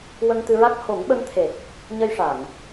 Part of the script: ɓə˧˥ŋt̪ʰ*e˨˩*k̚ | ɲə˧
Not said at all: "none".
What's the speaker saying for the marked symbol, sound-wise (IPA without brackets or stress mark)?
e˨˩